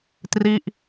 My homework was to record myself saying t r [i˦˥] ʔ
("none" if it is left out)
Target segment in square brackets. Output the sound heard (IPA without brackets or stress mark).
i˥˩